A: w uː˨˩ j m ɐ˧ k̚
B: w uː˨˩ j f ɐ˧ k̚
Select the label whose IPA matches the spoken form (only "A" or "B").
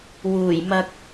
A